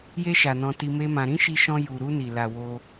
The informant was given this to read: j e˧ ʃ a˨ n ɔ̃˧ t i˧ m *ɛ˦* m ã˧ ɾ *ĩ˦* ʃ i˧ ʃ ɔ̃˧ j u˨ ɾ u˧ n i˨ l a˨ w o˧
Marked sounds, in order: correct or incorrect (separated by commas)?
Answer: incorrect, correct